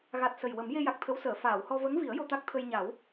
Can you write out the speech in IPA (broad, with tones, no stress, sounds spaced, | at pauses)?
ɣ a˨˩ t̚ s ə˨˩ j w ə˨˩˦ m j e˧ j a˨˩ k̚ t̪ʰ ə˧˥ w s əː˨˩˨ f aː˨˩˨ w h ɔ˧ v ə˧˥ ŋ v i˨˩˦ ə̯ j o˧ t̪ a˦˥ k̚ t̪ʰ ə˧ j ɲ a˨˩˦ w